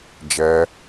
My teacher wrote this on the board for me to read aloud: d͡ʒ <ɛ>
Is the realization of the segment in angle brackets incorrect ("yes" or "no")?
no